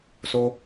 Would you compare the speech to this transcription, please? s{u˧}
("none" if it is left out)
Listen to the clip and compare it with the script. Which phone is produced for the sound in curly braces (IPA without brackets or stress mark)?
o˧